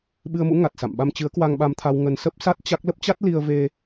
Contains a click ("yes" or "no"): no